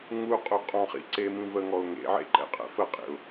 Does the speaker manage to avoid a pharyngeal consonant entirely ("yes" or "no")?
no